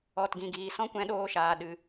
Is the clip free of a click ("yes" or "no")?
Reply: yes